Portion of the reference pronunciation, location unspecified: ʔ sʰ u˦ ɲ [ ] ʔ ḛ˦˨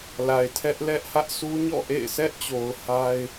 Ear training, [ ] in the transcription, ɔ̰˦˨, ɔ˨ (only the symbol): ɔ̰˦˨